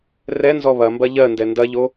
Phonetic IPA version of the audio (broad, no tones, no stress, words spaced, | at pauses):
rɛnzɔ βɐ mbɐʎɜndɛ ndɐʎo